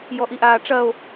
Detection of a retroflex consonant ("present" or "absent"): present